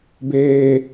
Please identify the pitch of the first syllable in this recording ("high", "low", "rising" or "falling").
high